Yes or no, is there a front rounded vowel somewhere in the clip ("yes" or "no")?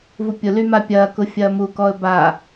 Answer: yes